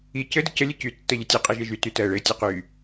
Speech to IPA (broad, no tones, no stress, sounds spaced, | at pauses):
i c ɘ d ə c ə lʲ ɘ c y tː ɜ ʎ ɘ tʲ e qʼ e ʒ e ʒ y t y t ɜ ɭ ɘ tʲ ɘ q y